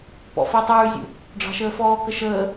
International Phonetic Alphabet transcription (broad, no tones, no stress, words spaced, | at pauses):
pɔ̰fitˤʉːzʲṵ | ɖ͡ʐɑ̤ʃəːfɔːkə ʃəː